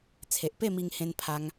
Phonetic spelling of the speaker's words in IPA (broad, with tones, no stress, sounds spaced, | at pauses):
t͡sʰ e˨ ʔ p e˥˧ m i˧ ŋ h ẽ˧ n pʰ a˧ ŋ